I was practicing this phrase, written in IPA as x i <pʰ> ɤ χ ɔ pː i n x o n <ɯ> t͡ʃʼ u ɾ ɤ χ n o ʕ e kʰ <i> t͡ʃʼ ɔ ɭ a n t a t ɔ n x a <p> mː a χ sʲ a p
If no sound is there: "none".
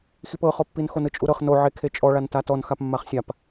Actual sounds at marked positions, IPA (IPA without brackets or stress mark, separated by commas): p, ɯ, e, p